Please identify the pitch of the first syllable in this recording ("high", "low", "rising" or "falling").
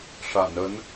low